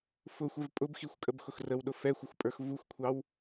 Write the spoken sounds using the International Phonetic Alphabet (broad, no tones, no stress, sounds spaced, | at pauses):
f ʊ xʷ ɛ v pʼ ʊ b x i xʷ kʼ ə b x ʊ x r ə w ɗ ʊ f ɛ xʷ ɪ xʷ pʼ ə˞ x v u xʷ kʷʰ ɑ w